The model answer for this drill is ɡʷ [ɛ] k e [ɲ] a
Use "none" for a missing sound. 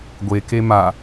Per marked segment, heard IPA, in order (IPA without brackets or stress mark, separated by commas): e, m